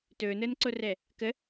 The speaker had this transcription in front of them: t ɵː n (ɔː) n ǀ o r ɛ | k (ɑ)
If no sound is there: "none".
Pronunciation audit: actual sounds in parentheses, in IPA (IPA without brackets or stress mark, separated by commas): əː, ə